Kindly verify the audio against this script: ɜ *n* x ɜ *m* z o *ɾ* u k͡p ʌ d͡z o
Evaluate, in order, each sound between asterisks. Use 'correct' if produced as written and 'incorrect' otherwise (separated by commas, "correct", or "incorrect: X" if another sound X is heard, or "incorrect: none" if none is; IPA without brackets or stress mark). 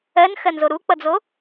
correct, incorrect: n, correct